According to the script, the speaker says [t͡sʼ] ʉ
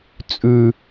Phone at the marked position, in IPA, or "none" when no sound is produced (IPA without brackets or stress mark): t͡sʼ